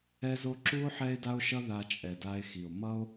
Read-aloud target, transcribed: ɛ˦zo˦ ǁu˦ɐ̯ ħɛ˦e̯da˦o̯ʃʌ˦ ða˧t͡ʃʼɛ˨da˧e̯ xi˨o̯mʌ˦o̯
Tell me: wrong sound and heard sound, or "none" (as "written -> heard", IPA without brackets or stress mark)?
ɐ̯ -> o̯